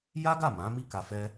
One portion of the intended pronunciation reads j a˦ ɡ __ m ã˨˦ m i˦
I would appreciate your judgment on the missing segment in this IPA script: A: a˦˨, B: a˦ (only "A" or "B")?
A